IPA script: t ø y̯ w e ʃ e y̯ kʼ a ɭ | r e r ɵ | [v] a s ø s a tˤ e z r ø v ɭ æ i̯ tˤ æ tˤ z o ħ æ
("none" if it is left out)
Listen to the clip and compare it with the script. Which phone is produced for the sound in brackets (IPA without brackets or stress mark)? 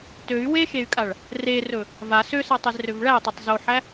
v